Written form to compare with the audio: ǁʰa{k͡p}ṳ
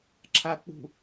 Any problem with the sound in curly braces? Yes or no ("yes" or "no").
no